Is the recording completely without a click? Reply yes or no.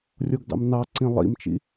no